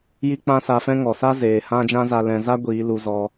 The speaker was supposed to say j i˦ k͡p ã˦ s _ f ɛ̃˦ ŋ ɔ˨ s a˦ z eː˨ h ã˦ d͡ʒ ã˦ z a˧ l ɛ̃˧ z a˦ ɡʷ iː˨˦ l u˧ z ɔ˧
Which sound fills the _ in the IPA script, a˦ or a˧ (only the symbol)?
a˧